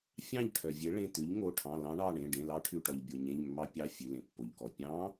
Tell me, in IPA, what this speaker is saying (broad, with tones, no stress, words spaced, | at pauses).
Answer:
fʲɑ̃˥˩ʎʈʰœ˩vʲe˩˥ ɭẽ˩˧˩t̪ʉ˩˥ʎŋo˩˧˩ʈʰɑ̃˩˧˩ lɑ̃˧˥ɳɑ˩˧˩ɳẽ˩˧˩ ɖẽ˩˧˩lɑ˧˥ʈʰʉ˩˧˩ʈɔ˩ʎ bʲo˩ɲẽ˩˧˩ʎmːɑ˧˥ pʲɑ˩˧˩ fʲʉ˩˧˩lẽ˩pːo˩ʎkɔ˩ pʲɑ̃˧˥